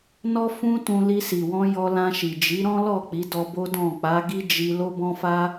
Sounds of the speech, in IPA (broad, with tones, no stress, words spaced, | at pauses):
nɔ˦ fũ˦tũ˧ li˧si˨wɔ̃˧ jɔ˧lã˧ʃi˨d͡ʒi˨˦ ɾɔ̃˦lɔ˦˨ k͡pi˨˦dɔ˧bo˦ dɔ̃˦˨ k͡pa˨˦ɡi˦ d͡ʒi˧ lo˦bɔ̃˦fa˦